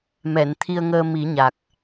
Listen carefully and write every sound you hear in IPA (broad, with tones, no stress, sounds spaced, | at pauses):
m ɛ˨˩˨ n t̪ʰ i˧ ə̯ ŋ əː˧ m i˨˩˦ ɲ a˨˩ k̚